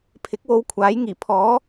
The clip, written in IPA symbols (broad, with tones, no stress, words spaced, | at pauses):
pʰɪ˨˥k̚wo˧wkʷʰaː˨˥j ŋiː˨˩pʰɔː˨˥